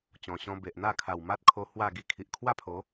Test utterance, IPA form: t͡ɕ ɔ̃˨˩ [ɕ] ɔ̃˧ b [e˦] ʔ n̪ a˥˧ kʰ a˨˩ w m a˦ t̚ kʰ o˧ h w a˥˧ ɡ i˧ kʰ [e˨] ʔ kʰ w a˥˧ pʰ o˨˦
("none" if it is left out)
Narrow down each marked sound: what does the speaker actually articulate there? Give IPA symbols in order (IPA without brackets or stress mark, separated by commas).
ɕ, e˨, i˨